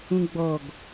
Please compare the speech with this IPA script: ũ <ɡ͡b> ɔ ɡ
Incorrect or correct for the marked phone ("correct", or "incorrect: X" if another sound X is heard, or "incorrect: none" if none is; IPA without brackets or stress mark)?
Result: correct